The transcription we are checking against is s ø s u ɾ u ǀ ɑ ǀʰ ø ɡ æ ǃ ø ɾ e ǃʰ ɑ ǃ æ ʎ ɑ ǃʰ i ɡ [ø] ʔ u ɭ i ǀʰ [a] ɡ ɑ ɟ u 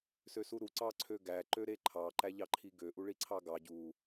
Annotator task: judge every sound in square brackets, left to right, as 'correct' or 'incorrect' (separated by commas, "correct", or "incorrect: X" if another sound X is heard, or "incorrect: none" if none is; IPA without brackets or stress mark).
correct, incorrect: ɑ